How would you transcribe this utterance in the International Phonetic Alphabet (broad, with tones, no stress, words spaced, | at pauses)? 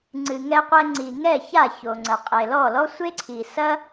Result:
ŋ͡ǀɨ˩ ŋɛ˧qʷɛ˧ŋ͡ǀi˩ ŋɛ˥˩ ça˥˩ço˩ ŋ͡ǀɐ˩qʼe˩ lɔ˥˩lɔ˥sʷe˥ ǀʰi˩sɐ˥